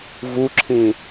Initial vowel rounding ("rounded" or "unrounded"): rounded